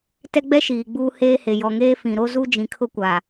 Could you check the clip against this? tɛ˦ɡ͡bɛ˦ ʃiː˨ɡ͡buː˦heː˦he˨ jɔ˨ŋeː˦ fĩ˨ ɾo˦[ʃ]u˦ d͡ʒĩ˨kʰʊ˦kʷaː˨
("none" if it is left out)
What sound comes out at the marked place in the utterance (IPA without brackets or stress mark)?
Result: z